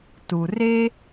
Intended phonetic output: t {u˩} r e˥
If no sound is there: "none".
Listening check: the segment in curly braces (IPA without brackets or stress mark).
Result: u˩